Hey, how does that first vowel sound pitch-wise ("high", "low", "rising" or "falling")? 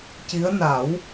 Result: rising